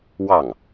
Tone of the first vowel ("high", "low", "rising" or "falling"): falling